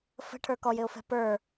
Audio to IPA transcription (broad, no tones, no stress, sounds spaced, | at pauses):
f ə̤ ʈʰ ə˞ k ɔ j ɪ ʊ̯ f ɛ̤ p ə˞